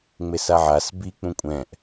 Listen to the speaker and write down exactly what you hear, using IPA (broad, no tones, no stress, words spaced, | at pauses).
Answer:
ŋ͡mesaʕas bi k͡pũkʷʼɛ̃ʔ